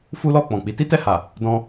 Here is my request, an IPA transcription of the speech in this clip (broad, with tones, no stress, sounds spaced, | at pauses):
f u˦ l ɔ˦˨ k͡p ɔ̃˨ k͡p i˨˦ t i˦ t ɛ˦˨ h a˨ | d ɔ̃˧